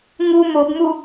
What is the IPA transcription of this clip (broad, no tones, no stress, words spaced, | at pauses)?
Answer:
ŋu mobmu